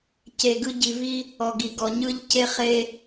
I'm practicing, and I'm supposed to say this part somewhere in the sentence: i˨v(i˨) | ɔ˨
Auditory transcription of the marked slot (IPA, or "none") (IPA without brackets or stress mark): i˦